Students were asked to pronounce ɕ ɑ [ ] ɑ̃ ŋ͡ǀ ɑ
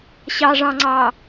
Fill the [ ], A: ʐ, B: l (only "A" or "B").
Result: A